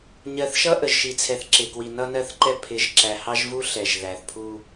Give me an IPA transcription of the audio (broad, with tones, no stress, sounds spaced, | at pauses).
ɲ ɜ˨ θ ʃ ʌ˦ ʔ ə˨ ʒ ʃ i˨ t͡sʰ ɛ˨ θ ǁ ɪ˨ k w i˨ n ʌ˦ n ɜ˦˨ θ ǃ ɛ˦ pʰ ɪ˨˦ ʒ ǁ æ˨ h ɑ˦ ʒ v u˦ ɬ ɛ˨ ʒ ð æ˨ θ pʰ u˦